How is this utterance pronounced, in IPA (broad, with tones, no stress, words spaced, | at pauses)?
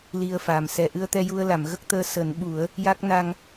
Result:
li˧ə̯faː˨˩msɛ˨˩˦ ʔɨ˧ə̯t̪ɛ˧ ju˧ə̯la˨˩˨mɣə˦˥k̚t̪əː˧ səː˨˩˦nɓu˨˩˦ə̯ | ja˦˥k̚ na˧ŋ